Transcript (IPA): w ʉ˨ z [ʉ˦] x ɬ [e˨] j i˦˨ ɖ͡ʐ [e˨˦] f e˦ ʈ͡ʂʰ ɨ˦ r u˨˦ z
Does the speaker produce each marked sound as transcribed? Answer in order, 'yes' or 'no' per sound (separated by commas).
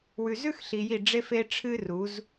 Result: yes, no, no